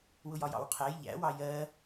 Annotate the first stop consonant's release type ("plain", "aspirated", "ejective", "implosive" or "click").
aspirated